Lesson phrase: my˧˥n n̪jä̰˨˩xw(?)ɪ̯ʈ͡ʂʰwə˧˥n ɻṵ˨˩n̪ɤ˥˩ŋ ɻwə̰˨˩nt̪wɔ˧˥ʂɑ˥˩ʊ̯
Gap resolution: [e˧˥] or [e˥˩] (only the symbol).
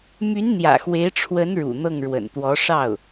e˧˥